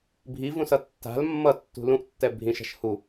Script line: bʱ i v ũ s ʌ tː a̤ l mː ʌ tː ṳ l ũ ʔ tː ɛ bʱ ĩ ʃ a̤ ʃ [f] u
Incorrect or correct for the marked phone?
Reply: incorrect: h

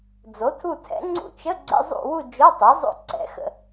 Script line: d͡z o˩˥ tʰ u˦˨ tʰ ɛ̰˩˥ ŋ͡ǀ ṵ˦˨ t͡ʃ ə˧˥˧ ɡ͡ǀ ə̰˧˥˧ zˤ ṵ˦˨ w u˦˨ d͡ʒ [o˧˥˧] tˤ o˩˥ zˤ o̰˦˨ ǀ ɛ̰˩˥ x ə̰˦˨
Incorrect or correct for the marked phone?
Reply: correct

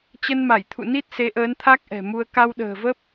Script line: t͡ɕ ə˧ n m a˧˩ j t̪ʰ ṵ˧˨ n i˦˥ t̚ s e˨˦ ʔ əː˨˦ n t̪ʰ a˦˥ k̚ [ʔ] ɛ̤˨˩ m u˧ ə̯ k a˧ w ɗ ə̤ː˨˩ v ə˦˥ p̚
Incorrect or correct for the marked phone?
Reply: correct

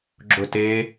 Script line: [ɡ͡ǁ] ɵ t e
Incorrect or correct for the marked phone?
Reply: correct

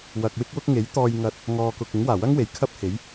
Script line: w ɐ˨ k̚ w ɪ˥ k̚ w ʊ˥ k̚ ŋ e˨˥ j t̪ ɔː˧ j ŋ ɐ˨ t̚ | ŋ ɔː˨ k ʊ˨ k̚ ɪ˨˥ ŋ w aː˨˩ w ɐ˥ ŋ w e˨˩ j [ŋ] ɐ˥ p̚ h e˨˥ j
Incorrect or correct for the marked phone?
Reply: incorrect: kʰ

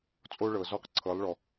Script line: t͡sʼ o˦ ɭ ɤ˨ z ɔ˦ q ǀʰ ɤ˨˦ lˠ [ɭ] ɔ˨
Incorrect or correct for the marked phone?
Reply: correct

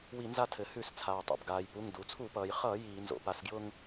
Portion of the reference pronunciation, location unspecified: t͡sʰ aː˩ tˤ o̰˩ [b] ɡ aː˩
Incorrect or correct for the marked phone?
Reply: correct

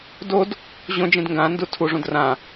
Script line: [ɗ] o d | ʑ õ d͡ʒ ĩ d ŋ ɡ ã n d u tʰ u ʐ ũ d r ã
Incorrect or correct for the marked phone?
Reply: incorrect: d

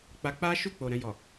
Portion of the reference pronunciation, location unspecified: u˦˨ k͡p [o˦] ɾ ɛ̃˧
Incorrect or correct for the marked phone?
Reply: incorrect: o˨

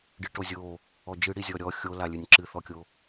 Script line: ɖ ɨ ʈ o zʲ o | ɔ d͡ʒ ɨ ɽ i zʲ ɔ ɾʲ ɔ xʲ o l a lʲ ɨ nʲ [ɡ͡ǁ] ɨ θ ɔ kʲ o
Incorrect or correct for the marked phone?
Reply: incorrect: ǁ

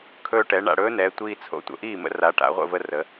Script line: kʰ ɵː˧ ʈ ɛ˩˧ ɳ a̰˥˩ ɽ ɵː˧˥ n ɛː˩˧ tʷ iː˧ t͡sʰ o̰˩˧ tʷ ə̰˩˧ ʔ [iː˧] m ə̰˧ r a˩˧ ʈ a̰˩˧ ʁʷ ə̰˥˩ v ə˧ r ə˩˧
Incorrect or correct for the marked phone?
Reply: incorrect: iː˥˩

